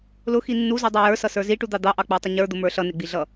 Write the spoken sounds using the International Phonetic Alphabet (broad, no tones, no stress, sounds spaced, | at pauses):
l ʊ x i nː u z u dˤ ɑ j ə˞ s ʌ s ə˞ z i ʈ u d̪ ɑ d̪ ɑ ʔ ɑ k͡p ə˞ tˤ ɪ ɲ ə˞ d̪ ʊ m ə˞ ɬ ʌ n ɪ ɡ͡b i ɮ ʌ